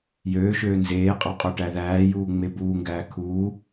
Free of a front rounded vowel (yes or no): no